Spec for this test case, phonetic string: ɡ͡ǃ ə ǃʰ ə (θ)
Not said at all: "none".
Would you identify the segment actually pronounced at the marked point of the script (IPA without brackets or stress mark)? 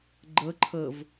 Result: v